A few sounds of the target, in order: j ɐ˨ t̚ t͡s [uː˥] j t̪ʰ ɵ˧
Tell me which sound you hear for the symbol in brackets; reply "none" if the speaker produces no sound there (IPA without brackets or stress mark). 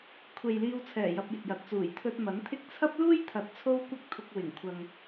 uː˨˩